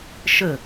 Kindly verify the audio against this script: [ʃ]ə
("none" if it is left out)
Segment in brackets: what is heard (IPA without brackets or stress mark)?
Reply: ʃ